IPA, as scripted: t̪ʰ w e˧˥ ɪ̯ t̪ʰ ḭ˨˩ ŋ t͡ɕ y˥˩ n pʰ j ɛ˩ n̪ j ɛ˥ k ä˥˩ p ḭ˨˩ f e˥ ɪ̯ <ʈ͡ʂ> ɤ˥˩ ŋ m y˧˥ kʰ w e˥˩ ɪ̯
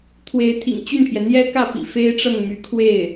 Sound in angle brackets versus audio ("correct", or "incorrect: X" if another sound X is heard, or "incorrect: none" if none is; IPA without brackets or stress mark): correct